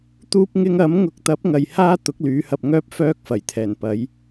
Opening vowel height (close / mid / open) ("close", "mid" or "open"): close